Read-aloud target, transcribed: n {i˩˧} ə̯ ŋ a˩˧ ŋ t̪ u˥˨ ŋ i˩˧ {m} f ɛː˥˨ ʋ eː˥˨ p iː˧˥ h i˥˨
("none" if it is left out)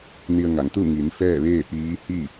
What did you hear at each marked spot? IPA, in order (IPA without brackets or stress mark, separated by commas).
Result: i˧, n